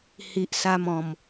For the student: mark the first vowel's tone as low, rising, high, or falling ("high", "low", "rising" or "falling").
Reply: low